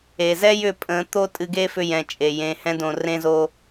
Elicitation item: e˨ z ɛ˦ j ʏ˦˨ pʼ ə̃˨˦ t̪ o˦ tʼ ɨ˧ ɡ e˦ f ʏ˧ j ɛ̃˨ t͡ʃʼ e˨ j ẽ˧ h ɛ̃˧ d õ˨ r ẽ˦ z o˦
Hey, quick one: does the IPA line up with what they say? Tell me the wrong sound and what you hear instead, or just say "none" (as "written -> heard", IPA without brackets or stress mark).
none